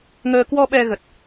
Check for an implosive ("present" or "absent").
present